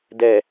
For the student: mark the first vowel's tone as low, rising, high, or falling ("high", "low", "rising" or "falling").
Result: low